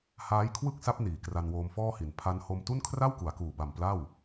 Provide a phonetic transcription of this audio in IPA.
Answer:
h aː˦˥ j kʰ w ɯ˥˩ k̚ s a˦˥ p̚ n iː˨˩ k r a˧ n w oː˧ m f ɔː˥˩ h i˨˩ n pʰ a˦˥ n h o˧ m t u˥˩ n kʰ r a˥˩ w k u˩˦ a̯ k uː˨˩ b a˨˩ m p l a˥˩ w

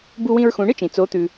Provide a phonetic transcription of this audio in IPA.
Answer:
b u˧ w ĩ˧ ɹ x ũ˩˧ ɳ ɨ˥ t͡ʃ ĩ˩ t͡s o˩˧ t̪ ʉ˩

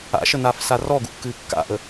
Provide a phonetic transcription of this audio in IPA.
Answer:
a̰ ʃ ə n aː f s a r ɔ ɡ ṵ kː ɨː kː a̰ ʔ ə

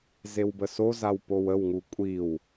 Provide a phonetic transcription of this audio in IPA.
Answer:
z e w b ə s o z a w p o w ə w ŋ u kʷʼ i w

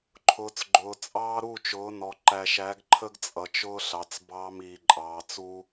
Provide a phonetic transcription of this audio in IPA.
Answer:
ǃʰ ʊː˨ t͡s ɡ͡ǃ ʊː˨ t͡sʼ ɑː˦ ɾ u˦˨ t͡ʃ ʊː˨˦ n ɔ˨ ǃ æ˨ ʃ æ˨˦ ɡ ǃʰ ə˦ ɡ t͡sʼ ʌ˨ t͡ʃ ʊː˦ ɬ ɑ˨ t͡s b ɑː˦ m iː˨ ǃʼ ɑː˨ t͡s u˦

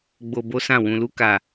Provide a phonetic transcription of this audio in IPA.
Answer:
ɡ͡b o˧ b o˦ s ã˦˨ w ũ˨ l u˧ k a˨

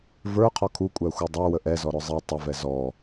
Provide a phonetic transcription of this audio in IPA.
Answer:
v ə˞ qʰ ɔ kʰ u kʷʼ æ xʷ æ dˤ ə˞ w ə ʔ ɛ z ɔ ɾ ʊ zˤ ɛ tˤ ə v ɛ z ɔ

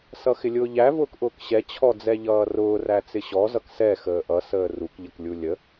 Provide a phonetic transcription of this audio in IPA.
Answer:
s ʌ x ɪ lʲ ʊː ʎ æ v ʊː k ʔ ʊː k ɕ ɛ t͡ɕʰ ɔ d͡z ɛ ʎ ʌː r ʊː r æ t͡s ɪ ɕ ɔ z ʌ k s ɛ x əː ʔ ʌ s əː r u k ʎ ə k lʲ u lʲ ə

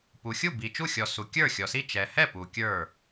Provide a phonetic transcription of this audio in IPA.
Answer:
p u˨ xʲ u˥˨ b i˨ t͡ʃ u˥˨ xʲ ɔ˨ s u˨ kʲ ə˞˥˨ xʲ ɔ˨ s i˥˨ t͡ʃ ɛ˨ h ɛ˥˨ p u˨ kʲ ə˞˥˨

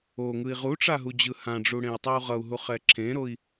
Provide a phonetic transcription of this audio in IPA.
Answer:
o ŋ ɯ i̯ ʁ u ʈ͡ʂ a ɦ u d͡ʑ ɯ h ã ɖ͡ʐ u ɽ ẽ i̯ tˤ i u̯ ʁ ʌ u̯ ɦ u χ ɛ ǁʰ ẽ ɾ o i̯

